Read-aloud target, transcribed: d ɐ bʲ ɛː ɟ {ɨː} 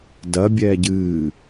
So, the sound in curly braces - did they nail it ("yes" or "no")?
yes